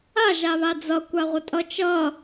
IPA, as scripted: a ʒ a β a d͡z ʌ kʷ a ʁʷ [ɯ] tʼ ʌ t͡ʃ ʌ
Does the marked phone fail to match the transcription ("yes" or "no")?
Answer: yes